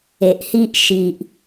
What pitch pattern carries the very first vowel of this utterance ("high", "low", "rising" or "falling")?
low